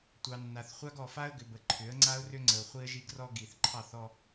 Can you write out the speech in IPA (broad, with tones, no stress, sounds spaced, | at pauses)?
tʷ ɑ˨ nː a˨ θ χʷ a˦ ɡ ɔ˨ f a˦ ə̯ ɡ ʏ˨ b ə˨ ǃʰ ʏ˨˦ ə̯ ŋ͡ǀ a˦ ʊ̯ r ʏ˦ ŋ͡ǀ ə˨ ʊ̯ χʷ i˦ ə̯ ʒ i˦ ɡ r ɔ˦ ɡ i˨ θ ǃʰ ɑ˦˨ θ ɔ˦